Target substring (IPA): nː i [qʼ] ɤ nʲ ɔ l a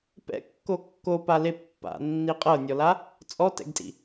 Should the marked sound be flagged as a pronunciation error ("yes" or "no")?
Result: no